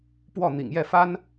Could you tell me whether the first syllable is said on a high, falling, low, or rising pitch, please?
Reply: falling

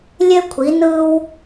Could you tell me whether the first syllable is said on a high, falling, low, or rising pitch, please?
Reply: high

